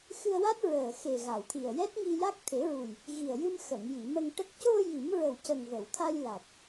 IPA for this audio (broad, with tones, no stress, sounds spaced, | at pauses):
x ɨ˧ ə̯ w a˦˥ t̚ ɹ əː˨˩ x e˨˩ ɣ a˨˩˨ w t̪ʰ i˨˩ ə̯ j ɛ˦˥ t̚ ŋ i˧ j a˦˥ k̚ t̪ʰ e˨˩˦ ɹ u˨˩ j | ɣ i˨˩ ə̯ j ɨ˧ m x ə˨˩˨ ŋ j i˨˩˨ m ə˧ ŋ ʈ ə˦˥ k̚ c o˧ j i˨˩˦ m ɹ ə˨˩ w c ə˨˩ ŋ v ə˨˩˨ w t̪ʰ a˧ j l a˨˩ t̚